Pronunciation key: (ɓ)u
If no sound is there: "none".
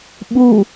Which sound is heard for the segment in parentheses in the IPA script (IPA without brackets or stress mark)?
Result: ɓ